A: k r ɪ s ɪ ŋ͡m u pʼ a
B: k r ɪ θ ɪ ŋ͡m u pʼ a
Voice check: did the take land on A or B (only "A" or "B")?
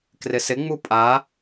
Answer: A